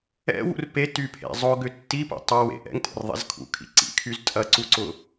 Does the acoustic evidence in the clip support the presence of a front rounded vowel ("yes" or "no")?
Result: yes